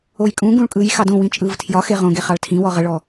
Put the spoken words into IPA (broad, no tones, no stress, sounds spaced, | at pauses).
o j kʼ ũ ɡ ũ ɭ kʼ ɯ j x ɑ d õ w ĩ t͡ʃʼ ɯː v tʰ j ɒ x e ʁ õ ɡ e χ ɑ ɭ tʰ ĩ w ɔ ʁ ə ɭ ɔ